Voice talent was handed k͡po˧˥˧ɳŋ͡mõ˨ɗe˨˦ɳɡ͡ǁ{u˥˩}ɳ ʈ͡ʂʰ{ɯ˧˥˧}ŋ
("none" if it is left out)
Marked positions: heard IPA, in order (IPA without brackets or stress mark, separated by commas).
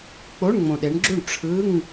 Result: u˥˩, ɯ˧˥˧